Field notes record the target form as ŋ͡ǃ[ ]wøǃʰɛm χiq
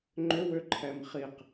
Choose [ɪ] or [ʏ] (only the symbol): ʏ